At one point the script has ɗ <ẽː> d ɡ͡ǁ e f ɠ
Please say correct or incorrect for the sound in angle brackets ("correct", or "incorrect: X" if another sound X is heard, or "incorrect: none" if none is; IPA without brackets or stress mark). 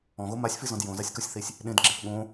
incorrect: ẽ